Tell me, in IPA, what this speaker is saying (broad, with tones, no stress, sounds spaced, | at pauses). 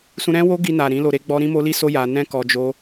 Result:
s ũ˧ ɾ ɛ̃˦ w o˦ ɡ i˧ n a˨ ɾ ĩ˨˦ l o˧ ɾ e˦ ɡ͡b ɔ˦ ɾ ĩ˦ m o˦ l i˦ s o˦ j a˧ n ɛ̃˦ k ɔ˧ d͡ʒ o˦